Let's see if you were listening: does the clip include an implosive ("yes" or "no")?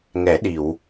yes